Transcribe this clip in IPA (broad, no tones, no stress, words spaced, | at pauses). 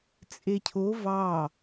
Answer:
t͡sʼecʰo vɑ